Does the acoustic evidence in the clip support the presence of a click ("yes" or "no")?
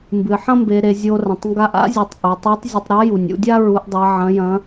no